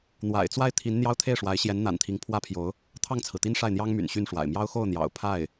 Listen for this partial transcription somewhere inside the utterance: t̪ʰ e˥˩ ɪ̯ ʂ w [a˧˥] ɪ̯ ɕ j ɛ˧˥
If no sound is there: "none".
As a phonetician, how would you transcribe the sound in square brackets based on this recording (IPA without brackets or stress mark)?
a˧˥